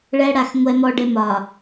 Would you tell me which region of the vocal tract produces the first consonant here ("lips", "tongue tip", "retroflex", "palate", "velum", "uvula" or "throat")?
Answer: retroflex